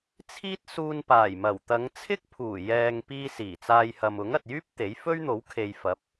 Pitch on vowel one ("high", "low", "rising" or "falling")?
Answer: high